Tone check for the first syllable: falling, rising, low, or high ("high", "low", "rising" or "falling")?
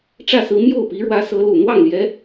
falling